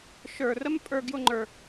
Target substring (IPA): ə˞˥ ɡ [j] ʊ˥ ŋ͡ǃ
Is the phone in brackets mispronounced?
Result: no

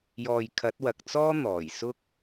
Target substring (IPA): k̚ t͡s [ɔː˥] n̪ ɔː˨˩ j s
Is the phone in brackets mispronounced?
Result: no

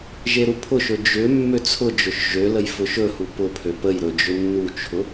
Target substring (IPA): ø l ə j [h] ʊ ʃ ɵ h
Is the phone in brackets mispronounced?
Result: yes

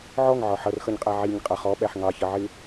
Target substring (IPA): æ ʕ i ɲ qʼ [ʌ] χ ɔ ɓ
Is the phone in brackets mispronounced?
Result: no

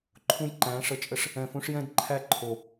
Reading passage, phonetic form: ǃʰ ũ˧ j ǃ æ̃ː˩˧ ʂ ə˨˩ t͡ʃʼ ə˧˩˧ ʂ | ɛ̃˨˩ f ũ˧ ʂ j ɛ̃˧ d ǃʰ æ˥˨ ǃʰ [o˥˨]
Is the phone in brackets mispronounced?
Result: yes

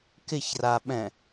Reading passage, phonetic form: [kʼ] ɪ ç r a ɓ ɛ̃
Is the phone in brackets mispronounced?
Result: yes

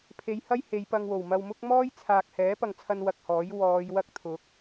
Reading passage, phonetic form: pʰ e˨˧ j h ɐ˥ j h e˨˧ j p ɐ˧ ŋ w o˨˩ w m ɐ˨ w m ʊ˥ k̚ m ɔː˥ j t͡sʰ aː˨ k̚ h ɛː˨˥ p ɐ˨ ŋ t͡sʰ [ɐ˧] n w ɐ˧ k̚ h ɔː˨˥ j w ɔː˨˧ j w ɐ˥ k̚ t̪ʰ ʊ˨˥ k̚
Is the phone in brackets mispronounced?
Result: no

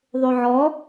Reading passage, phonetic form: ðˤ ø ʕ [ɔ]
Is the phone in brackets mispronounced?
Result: no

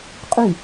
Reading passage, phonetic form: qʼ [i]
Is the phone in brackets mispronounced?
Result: yes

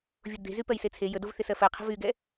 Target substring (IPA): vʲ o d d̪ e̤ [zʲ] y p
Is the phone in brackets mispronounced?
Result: yes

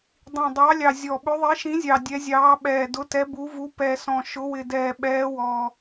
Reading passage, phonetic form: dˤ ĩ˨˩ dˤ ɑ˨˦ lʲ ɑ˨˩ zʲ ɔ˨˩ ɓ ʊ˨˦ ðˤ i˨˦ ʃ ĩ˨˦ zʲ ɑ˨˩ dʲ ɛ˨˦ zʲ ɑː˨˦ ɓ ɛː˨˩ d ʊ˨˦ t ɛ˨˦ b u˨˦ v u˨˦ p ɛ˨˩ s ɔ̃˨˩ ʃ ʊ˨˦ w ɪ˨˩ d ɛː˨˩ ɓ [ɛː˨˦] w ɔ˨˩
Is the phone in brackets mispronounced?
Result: no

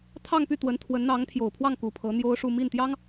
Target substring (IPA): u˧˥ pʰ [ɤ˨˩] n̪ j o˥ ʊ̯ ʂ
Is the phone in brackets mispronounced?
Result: yes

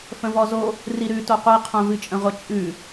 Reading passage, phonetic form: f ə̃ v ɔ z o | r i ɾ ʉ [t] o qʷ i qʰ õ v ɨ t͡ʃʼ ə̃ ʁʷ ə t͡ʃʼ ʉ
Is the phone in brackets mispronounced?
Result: no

